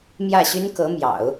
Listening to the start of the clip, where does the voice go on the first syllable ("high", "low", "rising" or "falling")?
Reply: falling